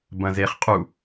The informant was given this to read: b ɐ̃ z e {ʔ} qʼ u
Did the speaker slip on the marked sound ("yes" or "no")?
yes